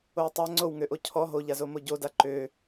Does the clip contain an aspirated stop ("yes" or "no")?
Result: yes